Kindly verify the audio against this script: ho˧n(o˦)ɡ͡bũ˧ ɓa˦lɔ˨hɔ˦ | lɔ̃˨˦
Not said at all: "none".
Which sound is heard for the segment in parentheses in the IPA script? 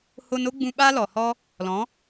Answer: o˦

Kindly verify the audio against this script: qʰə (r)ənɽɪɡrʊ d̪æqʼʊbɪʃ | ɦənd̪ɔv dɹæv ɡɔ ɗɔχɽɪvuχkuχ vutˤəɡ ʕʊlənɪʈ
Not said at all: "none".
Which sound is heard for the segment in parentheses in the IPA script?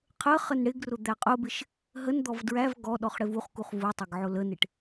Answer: χ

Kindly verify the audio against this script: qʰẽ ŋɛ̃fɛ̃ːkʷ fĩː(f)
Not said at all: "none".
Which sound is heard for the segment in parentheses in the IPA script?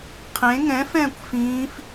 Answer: f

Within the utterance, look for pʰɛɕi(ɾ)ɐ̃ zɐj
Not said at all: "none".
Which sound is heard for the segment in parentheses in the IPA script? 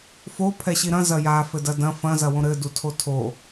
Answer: ɾ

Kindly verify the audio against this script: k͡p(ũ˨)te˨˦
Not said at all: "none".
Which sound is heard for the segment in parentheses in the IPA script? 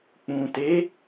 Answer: ũ˨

